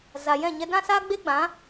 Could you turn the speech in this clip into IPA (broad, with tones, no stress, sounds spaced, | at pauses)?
z a˨ j ɛ̃˦˨ ɲ ɛ˧ d ã˦ s aː˦ ɡ͡b e˦ ɡ͡b ã˨˦